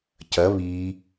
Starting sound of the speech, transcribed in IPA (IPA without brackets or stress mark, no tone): c